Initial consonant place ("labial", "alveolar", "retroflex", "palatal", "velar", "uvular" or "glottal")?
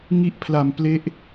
velar